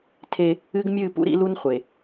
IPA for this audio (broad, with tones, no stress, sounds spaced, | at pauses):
tʰ e˦ | ɨ˦ ɡ mʲ ɨ˦˨ p ṵ˦ ɾ ḭ˦ l u˦ n χʷ e˨